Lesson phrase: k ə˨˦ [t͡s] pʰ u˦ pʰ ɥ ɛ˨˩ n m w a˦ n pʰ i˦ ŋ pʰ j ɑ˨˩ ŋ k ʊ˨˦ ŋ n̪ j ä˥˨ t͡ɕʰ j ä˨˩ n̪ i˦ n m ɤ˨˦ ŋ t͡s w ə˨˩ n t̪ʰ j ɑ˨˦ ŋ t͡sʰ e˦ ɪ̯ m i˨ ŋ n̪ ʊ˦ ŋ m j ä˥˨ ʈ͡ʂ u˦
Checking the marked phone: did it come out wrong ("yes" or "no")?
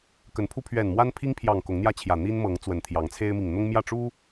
yes